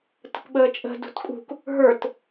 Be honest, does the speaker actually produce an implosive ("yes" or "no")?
yes